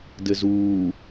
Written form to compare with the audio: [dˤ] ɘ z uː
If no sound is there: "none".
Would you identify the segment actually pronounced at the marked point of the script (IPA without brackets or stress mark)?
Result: d